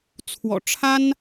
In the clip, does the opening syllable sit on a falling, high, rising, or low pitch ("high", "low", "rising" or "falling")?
low